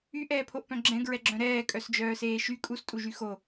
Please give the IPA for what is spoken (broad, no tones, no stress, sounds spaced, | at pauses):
y ʔ ɛː pʰ o ʔ p œ̃ ɡ͡ǁ ɛ̃ ɡ ɹ ɛ ɡ͡ǁ œ̃ ɾ ɛː kʼ œ s d͡ʒ œː s eː ʃ y kʼ u s tʼ u ʒ y x o